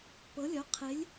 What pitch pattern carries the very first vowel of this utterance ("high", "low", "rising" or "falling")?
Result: rising